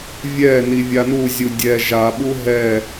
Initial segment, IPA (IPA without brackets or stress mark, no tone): vʲ